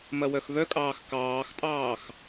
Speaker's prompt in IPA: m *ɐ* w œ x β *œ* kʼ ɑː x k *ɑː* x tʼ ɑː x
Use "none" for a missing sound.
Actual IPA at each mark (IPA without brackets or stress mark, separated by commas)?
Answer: ɐ, œ, ɑː